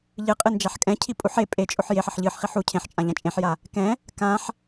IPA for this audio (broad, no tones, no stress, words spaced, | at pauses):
ʎɨqʼɨ nd͡ʒaħkʼɛ̃cʰi pʼuħ e pʼet͡ʃʼoħ jeħ ɐħʎɨħχiħ u cʰẽħt͡ʃʼã ʎãt͡ʃʼẽħja | kɛ̃ | kãħ